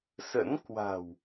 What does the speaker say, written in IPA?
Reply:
s ə̰˧˥ n k w a̤˨˩ w

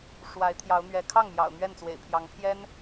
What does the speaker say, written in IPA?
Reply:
ʂ w a˧˥ ɪ̯ t̪ʰ j ɑ˧˥ ʊ̯ n̪ ɥ ɛ˧˥ kʰ ɑ˥˩ ŋ m j ɑ̰˨˩ ʊ̯ n̪ ɥ ɛ˥˩ n t͡s w ḛ˨˩ ɪ̯ pʰ j ɑ˧˥ ŋ pʰ j ɛ˥ n

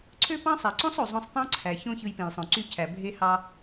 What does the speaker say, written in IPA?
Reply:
ǀʰ ø˦ p ɑ̃˦ sˤ æ˨ ǀ õ˦ sˤ o˨ zˤ õ˧ sˤ tˤ ɑ̃˦ ǀʰ æ˨ ç õ˦ ç ɯ˧ j p ẽ˨ j sˤ õ˨ ǀ y˧ cʰ æ˨ bʱ e˧ h ɑ˧

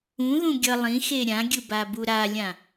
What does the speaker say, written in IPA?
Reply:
ũ ð ũ ɡʲ ʌ lˠ ĩ x e ɾʲ ã ɡʲ ɯ b a b u ɾ a lʲ ã

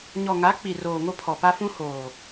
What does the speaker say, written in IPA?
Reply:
ɲ ɔ˨ ŋ a˨˦ k͡p i˨ r oː˨ ŋ o˦ pʰ ɔ˨ p a˦ f ũ˦ h oː˨

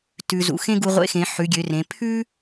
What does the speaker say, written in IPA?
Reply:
t ʉ˩ z ṵ˩ x ẽ˥ ɡ u˧ ʁʷ ḛ˧˥ x ẽ˩˧ ħ ʉ˩˧ ɡʲ ø˩˧ r ẽ˩˧ pʰ ʉ˥

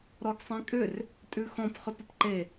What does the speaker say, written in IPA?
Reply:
ɾ ɔ ɡ sˤ ẽ kʼ ʏ r | tʼ ʉ x ɔ̃ p χ ʏ p ə p ǃ e

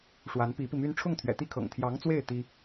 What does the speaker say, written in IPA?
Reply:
ʂ w a˧˥ n p i˧˥ p i˧ m y˥ n ʈ͡ʂʰ ʊ˥˩ ŋ t̪ʰ ɥ ɛ̰˨˩ t̪ i˥ kʰ ɤ̰˨˩ ŋ t̪ʰ j ɑ˧˥ ŋ t͡s w e˥˩ ɪ̯ t̪ i˥

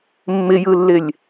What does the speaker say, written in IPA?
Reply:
mː ɪ j ɯ lː ɪ lʲ

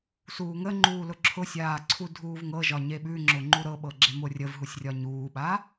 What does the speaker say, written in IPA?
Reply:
s uː ŋ ə ŋ͡ǃ uː l ʊ ǁʰ ʊ sʲ aː ǀʰ u dʱ uː v ŋ ɤ ʒ ɒ ɲ e ɓ ʉ ŋ͡ǁ ʊ ŋ͡ǃ u ɾ ɤ ɓ ɤ ɡ͡ǁ e m ʊ rʲ ə v ɦ u sʲ rʲ ɒ ɲ uː ɓ a

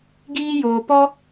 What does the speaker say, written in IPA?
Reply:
ɡ iː˦ j oː˧ p ɔ˦

